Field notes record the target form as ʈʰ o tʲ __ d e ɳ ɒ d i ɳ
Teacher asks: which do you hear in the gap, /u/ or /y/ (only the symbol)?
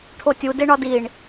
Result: u